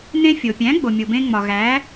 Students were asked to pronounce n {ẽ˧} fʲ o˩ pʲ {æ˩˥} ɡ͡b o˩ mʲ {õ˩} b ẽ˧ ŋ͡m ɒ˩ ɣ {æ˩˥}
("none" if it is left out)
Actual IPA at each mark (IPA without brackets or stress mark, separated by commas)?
ẽ˧, æ̃˩˥, o˩, æ˩˥